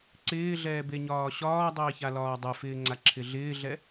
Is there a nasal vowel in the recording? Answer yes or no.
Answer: no